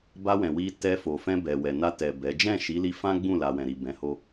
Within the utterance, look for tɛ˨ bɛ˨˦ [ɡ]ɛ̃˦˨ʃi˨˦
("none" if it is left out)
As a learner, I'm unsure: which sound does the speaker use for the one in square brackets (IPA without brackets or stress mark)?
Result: d͡ʒ